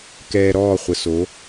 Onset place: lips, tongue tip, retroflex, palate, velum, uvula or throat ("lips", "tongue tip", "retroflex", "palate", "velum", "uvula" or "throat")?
velum